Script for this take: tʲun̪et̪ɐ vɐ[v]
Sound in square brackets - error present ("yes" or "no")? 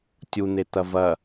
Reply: yes